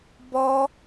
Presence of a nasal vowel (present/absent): absent